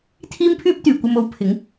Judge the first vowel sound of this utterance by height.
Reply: high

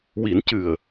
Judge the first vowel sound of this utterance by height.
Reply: high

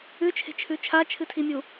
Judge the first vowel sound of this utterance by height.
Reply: high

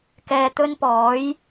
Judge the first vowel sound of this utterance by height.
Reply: mid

